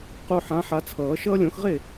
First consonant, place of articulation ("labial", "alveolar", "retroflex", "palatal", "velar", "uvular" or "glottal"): uvular